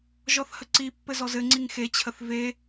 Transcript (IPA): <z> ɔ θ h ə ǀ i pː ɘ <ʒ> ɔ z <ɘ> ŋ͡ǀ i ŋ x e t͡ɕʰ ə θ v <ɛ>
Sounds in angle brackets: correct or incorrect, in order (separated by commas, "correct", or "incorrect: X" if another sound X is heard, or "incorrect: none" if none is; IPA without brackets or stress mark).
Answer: incorrect: ʒ, incorrect: z, correct, incorrect: e